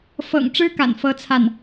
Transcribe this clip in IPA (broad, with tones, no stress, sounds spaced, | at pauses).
f ɤ̰˨˩ ŋ ʈ͡ʂ ɻ̩˥ k a̰˨˩ n f ɤ˥ t͡sʰ a˥˩ n